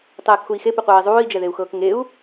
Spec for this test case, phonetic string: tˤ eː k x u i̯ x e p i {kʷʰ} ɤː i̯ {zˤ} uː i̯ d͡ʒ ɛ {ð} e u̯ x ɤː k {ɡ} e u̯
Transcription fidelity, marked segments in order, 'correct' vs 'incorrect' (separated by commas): incorrect, correct, correct, incorrect